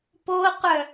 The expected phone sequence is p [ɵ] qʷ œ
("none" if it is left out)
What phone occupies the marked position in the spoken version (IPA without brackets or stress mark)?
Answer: o